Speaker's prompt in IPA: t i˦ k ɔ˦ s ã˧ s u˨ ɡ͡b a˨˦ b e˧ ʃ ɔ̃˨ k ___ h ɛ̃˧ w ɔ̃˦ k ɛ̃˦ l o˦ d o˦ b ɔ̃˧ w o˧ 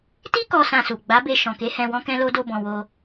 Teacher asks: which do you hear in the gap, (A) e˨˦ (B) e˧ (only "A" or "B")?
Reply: A